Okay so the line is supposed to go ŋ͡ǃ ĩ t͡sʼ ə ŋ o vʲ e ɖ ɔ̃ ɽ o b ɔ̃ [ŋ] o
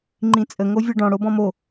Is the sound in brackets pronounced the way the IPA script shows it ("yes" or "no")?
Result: no